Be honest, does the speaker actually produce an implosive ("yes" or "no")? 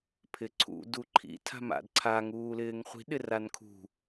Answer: yes